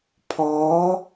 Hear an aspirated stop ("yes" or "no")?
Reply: yes